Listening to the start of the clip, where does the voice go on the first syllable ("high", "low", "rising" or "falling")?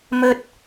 high